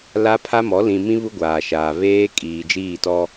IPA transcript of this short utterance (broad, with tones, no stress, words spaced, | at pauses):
la˦pʰa˦mɔ˨˦ lĩ˨mĩ˦ βu˦ɡʷaː˨ʃaː˨ βeː˦kʼiː˨d͡ʒiː˦˨ tɔ˦